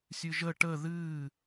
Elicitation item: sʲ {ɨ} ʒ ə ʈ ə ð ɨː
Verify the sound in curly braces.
correct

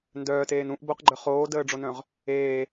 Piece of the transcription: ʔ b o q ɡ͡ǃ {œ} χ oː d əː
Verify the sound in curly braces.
correct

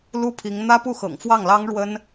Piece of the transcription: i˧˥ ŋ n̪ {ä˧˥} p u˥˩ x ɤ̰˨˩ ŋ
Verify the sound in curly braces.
incorrect: ä˥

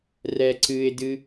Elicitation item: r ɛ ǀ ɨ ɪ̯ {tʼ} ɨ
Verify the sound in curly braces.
incorrect: d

